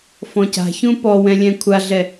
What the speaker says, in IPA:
fɔ̃ca̤çũ pɔwɛ̃ lʲɛ̃kʷʰaɮɛ

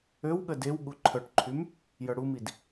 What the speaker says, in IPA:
øwɠə dew ɠuǃʰœʈǃʰym | jœɽumid

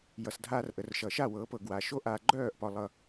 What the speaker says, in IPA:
jʌ˩s dʱaː˧rʔə˩rʃʌ˩ʃa˥˩ wɤː˩˥pɤ˩ ɡwaː˩ʃo˥ ʔa˧ ɡ͡ǃœː˥˩ʔ pɒ˧lˠʌ˧

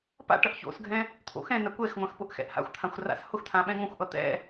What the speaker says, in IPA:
pa̰ʈʌʔ ço̰sɡʱɛ̃ | t̪ʰo̰xɛ̃na kʷɛxŋʷãx pʊʔxɛ̰ʔha̰xʷt̪ʰãxʷ ra̰shʊxt̪ʰã ɓɛ̃ŋõxʷʔʌ t̪ɛ̰

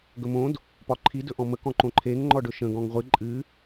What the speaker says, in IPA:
ɡɵmõd | pɒǃʰi dɵʔɔ̃mə kɔ̃ǃõǃʰeŋ ŋ͡ǃɔɖɵʃə̃ ɡɔ̃ŋʁʷɨ ǃʼɨ

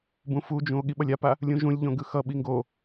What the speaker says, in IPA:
bũfud͡ʒũo̯ ɠiɓʌlʲapa | lʲũʒũlʲʎõ ɡɯxʌɓi ŋɡo

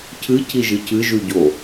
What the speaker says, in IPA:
cʰɨ cʰiʒɨcʰɨ ʒʉɟo

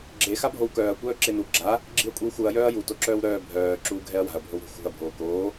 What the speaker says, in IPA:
ɡ͡ǁe xabʱowkœːɐ̯ kʷœːǁenu ɡ͡ǁa | ɡ͡ǁiɐ̯kʷʼiwxuɐ̯ jœːɐ̯ju toǁœːwɾœː bʱœː ǁuːɡʱɛɐ̯wa̤ɐ̯ bʱowɾṳ xṳɐ̯ bʱoːkoː

